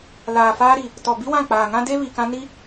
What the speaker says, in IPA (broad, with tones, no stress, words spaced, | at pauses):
laː˨faː˦ɾi˨ | tɔ˨ bi˦wã˦˨k͡paː˨ŋã˦ de˦ βi˨kã˦ ni˦